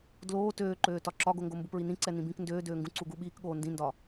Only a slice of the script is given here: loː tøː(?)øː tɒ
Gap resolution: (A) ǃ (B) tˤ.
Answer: A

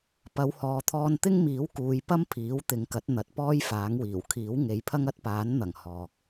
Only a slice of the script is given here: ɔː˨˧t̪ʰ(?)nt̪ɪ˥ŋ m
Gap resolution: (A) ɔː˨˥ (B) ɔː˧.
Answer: B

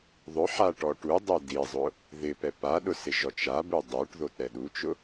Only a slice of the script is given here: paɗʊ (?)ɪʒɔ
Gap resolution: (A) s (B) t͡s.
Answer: A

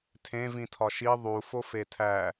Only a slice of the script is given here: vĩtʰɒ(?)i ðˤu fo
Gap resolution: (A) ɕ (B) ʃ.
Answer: B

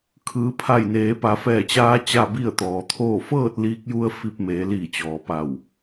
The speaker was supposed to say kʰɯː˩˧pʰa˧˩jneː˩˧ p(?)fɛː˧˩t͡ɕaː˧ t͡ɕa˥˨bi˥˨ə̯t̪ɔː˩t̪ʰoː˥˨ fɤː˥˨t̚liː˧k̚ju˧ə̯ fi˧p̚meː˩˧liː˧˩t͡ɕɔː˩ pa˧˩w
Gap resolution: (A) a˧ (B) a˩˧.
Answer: B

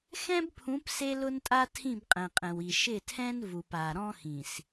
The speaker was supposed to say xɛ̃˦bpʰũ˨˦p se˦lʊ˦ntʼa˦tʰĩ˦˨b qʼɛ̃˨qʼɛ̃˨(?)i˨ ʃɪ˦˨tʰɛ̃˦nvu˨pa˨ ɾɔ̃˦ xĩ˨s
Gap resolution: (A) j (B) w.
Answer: B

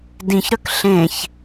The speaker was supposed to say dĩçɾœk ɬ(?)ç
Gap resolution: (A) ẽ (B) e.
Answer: A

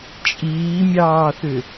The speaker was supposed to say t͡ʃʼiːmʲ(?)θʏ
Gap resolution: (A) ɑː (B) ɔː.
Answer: A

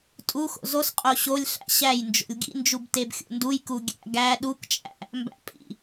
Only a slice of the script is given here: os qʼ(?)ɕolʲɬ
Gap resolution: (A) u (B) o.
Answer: B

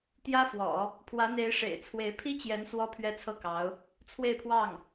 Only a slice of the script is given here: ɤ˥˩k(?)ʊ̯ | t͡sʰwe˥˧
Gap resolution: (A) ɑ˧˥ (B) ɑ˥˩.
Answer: A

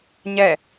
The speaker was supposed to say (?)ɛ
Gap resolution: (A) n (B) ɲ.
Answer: B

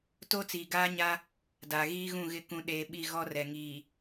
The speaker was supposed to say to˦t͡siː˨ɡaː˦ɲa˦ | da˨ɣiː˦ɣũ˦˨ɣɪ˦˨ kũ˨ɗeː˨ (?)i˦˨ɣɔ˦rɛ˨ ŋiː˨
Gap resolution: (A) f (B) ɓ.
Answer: B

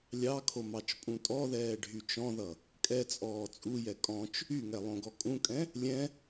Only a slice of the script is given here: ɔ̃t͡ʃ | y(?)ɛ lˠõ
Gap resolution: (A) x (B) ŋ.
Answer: B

